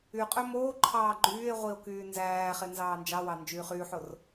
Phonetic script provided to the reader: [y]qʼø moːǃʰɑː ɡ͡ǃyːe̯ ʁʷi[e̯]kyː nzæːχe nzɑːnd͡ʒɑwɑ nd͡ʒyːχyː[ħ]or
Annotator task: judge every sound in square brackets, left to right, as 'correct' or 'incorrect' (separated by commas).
correct, incorrect, correct